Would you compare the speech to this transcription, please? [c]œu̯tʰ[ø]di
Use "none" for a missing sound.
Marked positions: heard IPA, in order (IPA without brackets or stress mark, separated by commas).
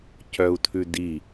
c, ʉ